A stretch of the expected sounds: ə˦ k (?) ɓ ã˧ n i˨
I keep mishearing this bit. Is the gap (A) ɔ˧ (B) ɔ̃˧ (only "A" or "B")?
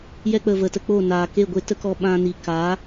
A